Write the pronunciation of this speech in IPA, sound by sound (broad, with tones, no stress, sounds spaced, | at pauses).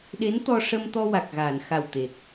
ɗ e˧˥ n t̪ ɔ˧ ʂ ə˧ m t̪ ɔ˧ w a˨˩ k̚ ɣ aː˨˩˨ n x a˨˩ w t̪ e˨˩ k̚